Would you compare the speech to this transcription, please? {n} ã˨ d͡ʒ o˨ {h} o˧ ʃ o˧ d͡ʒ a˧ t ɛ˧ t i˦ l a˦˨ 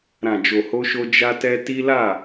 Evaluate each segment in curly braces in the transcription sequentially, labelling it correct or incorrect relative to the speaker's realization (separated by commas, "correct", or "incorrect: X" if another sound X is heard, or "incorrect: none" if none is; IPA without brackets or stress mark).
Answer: incorrect: ɾ, correct